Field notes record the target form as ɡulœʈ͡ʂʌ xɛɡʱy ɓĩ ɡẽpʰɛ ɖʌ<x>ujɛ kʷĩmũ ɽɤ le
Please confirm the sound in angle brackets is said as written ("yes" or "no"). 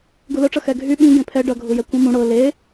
no